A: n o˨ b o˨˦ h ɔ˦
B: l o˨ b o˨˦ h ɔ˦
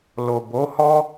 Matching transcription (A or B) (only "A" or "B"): B